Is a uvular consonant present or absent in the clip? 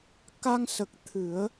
absent